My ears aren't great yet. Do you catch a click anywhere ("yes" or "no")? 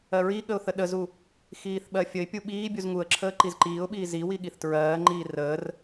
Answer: yes